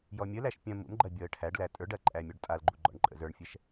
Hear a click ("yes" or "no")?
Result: yes